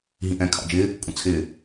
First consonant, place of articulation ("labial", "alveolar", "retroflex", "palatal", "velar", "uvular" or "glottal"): glottal